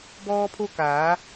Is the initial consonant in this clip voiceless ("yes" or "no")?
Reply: no